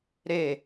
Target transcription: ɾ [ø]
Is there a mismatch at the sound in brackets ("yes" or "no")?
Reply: yes